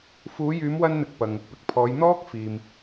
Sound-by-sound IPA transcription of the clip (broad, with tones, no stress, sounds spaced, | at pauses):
f uː˨˧ j yː˨˧ m w ɐ˧ n n̪ ɪ˨ k̚ p ɐ˨ ŋ | p ɪ˨ k̚ pʰ ɔː˨˧ j n̪ ɔː˥ k̚ f iː˨ m